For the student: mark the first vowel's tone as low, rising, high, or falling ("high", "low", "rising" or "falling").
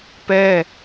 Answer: falling